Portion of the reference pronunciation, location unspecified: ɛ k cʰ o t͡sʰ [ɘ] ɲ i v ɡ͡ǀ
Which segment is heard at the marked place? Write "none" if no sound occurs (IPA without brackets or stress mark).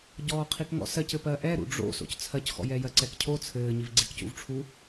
ɘː